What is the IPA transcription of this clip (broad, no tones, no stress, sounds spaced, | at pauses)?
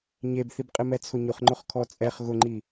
ɲ e b θ i b qʼ ɪ m ɛ t͡sʰ ʊ ɲ ʊ χ ŋ͡ǃ ʊ χ kʰ ɔ t͡sʼ ɛ χ ɣ ʊ ŋ͡ǃ i